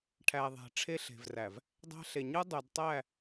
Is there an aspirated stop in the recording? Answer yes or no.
yes